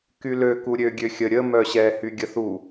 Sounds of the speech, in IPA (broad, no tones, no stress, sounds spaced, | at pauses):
k y l ø k u ɾʲ ø ɡʲ ø xʲ ə ɾʲ ə m œ ɕ ɛ h y ɡʲ ə θ u